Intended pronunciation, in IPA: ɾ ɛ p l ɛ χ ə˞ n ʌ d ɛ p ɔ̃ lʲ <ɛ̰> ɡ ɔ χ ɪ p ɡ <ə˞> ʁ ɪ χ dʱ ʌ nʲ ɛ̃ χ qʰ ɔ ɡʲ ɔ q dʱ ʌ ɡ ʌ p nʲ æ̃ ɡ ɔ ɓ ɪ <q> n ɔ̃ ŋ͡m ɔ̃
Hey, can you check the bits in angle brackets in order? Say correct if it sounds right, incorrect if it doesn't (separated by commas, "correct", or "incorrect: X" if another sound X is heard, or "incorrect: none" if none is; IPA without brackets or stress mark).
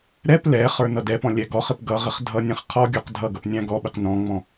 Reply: incorrect: ɛ, incorrect: ʌ, correct